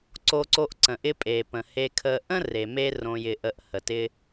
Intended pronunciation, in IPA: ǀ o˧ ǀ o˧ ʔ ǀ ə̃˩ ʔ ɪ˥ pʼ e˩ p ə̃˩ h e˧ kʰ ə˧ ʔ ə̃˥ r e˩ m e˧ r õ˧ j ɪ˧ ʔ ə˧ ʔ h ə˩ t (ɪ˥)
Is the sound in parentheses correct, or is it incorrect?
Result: correct